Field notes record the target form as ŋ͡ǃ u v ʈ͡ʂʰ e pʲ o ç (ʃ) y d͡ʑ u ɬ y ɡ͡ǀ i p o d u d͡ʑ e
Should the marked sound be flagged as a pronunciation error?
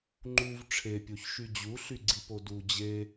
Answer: no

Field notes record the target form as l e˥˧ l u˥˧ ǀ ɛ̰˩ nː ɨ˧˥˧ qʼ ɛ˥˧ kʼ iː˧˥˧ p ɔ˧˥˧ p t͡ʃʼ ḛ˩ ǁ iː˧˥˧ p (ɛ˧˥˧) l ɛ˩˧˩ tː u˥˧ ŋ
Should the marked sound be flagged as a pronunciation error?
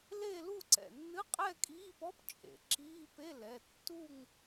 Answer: yes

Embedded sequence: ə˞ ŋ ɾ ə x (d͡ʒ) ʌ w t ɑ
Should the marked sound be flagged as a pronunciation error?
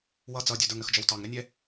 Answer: no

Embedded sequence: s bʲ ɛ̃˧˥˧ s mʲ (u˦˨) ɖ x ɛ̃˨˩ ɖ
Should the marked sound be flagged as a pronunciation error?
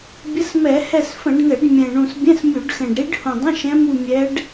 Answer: yes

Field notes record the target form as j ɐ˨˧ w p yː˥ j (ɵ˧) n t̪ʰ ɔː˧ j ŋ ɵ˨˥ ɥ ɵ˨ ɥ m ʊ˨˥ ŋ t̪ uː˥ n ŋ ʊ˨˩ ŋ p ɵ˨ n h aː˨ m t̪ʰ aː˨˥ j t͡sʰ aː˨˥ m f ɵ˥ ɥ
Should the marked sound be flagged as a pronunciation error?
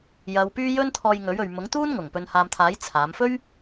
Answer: yes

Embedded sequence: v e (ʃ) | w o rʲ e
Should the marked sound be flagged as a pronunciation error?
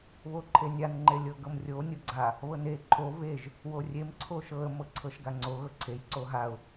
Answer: yes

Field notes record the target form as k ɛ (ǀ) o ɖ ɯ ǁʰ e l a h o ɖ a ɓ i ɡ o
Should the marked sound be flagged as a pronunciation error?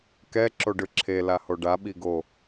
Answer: yes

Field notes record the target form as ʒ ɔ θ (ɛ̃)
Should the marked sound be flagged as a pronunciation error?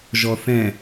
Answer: no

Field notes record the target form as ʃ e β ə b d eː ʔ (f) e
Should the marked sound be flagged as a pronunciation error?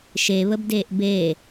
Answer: yes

